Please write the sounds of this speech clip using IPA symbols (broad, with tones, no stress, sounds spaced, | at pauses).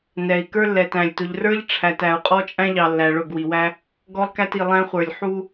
n ɛ˨ i̯ k ə˞˦ lː ɛ˨ t æ̃˨ lʲ t ʊ˨ ʎ r ə˞˦ ʎ ʈ͡ʂʰ æ˨ t æ˨ u̯ qʼ ɔ˦ t͡ʃʼ æ̃˦ ʎ ɑ˨ lː æ˨ ɭ ʊ˦˨ ɡ w i˨ w æ˦ | ɡ ɔ˦ lˠ k æ˦ t i˨ lˠ æ̃˦ χʷ ə˞˨ lʲ ħ u˦